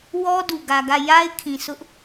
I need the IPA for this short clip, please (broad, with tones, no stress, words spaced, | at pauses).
wɔ˦ du˨ɡä˨ɡä˦˨ ja˦ɪ̯ kʰĩ˨sʊ˦ʔ